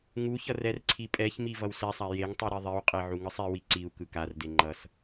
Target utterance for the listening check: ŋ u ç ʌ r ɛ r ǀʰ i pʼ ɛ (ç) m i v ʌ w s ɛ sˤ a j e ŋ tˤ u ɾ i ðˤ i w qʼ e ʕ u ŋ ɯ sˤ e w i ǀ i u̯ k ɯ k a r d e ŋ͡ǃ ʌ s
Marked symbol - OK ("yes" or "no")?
yes